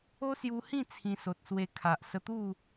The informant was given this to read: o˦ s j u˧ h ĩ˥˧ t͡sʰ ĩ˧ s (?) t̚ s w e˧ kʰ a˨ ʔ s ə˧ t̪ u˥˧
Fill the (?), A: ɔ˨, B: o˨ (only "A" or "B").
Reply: B